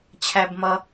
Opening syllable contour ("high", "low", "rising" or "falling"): low